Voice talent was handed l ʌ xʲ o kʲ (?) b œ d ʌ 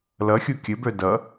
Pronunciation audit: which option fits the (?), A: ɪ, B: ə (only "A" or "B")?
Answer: B